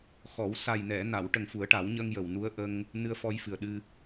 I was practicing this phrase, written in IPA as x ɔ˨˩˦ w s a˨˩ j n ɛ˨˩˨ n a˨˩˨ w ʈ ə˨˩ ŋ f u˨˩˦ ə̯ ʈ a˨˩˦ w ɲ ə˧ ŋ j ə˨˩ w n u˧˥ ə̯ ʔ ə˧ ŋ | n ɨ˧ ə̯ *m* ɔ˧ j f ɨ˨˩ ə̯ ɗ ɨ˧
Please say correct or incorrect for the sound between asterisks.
incorrect